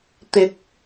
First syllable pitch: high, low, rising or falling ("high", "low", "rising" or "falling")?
rising